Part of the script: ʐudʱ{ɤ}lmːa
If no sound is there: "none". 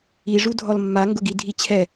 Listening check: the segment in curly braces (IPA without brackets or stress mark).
ɔ